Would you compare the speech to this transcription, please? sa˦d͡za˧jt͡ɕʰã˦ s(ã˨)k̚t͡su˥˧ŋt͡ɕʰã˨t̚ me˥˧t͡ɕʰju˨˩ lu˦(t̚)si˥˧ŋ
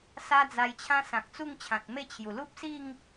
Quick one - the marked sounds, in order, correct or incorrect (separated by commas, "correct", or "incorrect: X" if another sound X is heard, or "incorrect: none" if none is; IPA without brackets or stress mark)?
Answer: correct, incorrect: p̚